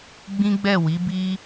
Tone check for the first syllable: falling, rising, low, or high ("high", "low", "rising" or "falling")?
high